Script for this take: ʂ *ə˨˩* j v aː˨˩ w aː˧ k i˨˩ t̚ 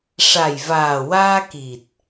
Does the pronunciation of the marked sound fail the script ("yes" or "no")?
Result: yes